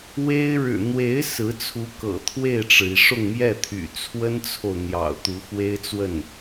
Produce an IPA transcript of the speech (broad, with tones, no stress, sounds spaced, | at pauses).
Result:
w e˥ ɪ̯ ɻ ɻ̩˨˩ n̪ w e˧˥ ɪ̯ s ɹ̩˧˥ t͡sʰ u˧˥ k ɤ̰˨˩ t̪ʰ w e˥˩ ɪ̯ ʈ͡ʂ ɻ̩˩ i˩ ʂ ʊ˥˧ ŋ m j ɛ˥˩ t̪ʰ y̰˨˩ t͡sʰ w ə˥ n t͡sʰ o˨ ʊ̯ n̪ j ɑ̰˨˩ ʊ̯ t̪ u˧˥ x w e˥ ɪ̯ t͡s w ə˥˩ n